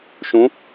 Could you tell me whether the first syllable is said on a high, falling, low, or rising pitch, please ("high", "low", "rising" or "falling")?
rising